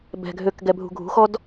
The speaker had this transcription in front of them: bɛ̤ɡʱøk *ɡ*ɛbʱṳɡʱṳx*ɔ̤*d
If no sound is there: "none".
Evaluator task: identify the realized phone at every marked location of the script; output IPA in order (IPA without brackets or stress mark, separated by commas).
ɡ, ɔ